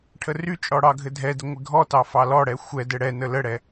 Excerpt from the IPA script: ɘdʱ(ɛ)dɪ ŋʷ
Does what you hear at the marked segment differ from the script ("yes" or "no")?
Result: no